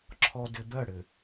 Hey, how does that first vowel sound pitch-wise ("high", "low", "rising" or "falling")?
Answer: low